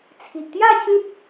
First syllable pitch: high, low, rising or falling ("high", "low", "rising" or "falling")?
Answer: low